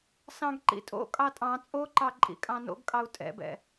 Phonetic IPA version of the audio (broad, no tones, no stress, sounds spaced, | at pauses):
s ɑ̃ ɡ ǃ ḭ tʼ o̰ kʼ ɑ tʼ ɑ̃ t͡sʼ o ǃ ɑ ǃʼ ḭ kʼ ɑ̃ n o̰ ɡ kʼ ɑ u̯ tʼ ɛ̰ b ɛ̰